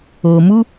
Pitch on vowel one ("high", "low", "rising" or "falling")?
low